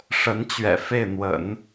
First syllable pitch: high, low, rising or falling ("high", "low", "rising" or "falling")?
rising